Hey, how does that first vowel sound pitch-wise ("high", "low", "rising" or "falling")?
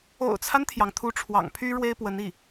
low